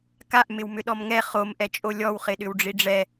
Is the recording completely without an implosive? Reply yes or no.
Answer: no